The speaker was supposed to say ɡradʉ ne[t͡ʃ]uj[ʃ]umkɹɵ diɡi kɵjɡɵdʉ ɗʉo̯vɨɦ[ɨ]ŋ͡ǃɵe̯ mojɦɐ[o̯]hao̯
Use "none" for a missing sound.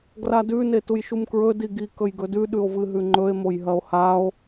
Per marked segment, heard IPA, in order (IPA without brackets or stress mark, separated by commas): t, ʃ, ʉ, o̯